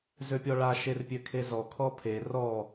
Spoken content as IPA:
z ø pʲ ɔ ɭ a ʃ e r pʲ ø kʰ e z ɔ kʰ ɔ pʰ e r ɔ

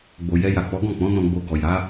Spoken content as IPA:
ɡ͡b o˨ j ɛ˧ j a˨ k͡p ɔ˨˦ ɡ ɔ̃˦˨ k͡p ɔ̃˨˦ n ɔ̃˧ ɡ͡b o˧ ɡ ɔ˨ j a˨˦

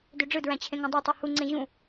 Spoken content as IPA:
d ø ɖ͡ʐ ɯ d ɹ æ̃ t͡ɕʰ ẽ ŋ æ̃ dˤ e tˤ u h u ŋ͡ǀ ẽ ʑ ũ

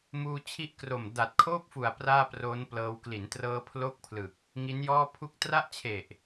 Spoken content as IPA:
m uː˧ t͡ɕʰ i˦˥ ʔ k r o˨˩ m d a˨˩ t̚ kʰ oː˥˩ p̚ f u˨˩ a̯ p r aː˥˩ p r oː˦˥ n p l ɤː˧ w k l i˩˦ n t r ɤː˧ pʰ l o˥˩ k̚ pʰ l ɯ˨˩ k̚ | ŋ i˦˥ n j ɔː˥˩ pʰ u˥˩ k̚ t r a˥˩ ʔ t͡ɕʰ e˨˩ ʔ

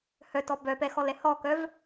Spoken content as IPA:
h œ t ɔ b œ p ɛ x ɔ l ɛ h ɔ k œ v

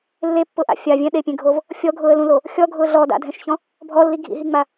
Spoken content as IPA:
lː e pː ʊ ʔ a̰ fʲ a vʲ ɛ̃ ɗ e pʲ ẽ ɡʱ o v | fʲ ɔ ɡʱ ʊː ə̯ l ũ l o | xʲ ɔ ɡʱ ʊː ɮ ɔ d a̰ dʱ ɛ̃ ʃ ç ɔ̃ | bʱ ɔ lː i ɡʱ ḭ ɦ i ŋ͡m a

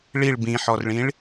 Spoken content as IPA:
ɭ i ɭ b ĩ ħ ɔ r ɭ ĩ ɭ

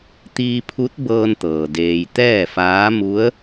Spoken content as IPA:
t̪ iː˧ pʰ u˧˥ t̚ b ɤː˧ n t̪ ɤː˩ d eː˩ j t̪ ɛː˥˨ f aː˧˥ m u˧˥ ə̯

